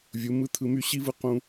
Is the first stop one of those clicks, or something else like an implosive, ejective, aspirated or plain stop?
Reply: aspirated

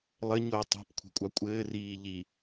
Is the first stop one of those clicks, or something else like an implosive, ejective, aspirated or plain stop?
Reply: plain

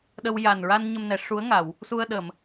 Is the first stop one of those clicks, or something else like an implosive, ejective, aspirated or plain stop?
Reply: implosive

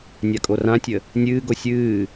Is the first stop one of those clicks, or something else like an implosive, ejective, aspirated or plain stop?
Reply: ejective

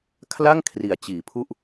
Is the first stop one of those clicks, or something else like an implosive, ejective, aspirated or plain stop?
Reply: aspirated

